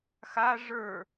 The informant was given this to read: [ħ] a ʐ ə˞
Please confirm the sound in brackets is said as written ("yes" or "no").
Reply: no